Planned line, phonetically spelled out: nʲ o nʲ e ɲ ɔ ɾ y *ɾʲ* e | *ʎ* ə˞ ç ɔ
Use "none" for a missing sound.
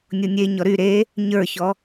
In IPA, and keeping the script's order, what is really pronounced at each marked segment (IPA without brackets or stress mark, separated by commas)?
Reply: ɾ, ɲ